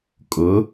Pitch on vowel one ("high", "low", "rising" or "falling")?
rising